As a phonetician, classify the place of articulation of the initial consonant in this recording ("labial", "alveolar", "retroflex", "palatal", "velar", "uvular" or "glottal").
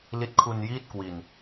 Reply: alveolar